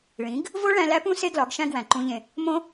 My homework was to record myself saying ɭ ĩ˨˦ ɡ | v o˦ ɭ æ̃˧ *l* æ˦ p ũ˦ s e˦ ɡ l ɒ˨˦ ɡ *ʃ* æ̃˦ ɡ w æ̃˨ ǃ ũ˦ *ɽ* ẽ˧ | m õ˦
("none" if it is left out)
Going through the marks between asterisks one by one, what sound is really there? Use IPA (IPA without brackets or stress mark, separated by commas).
l, ʃ, ʎ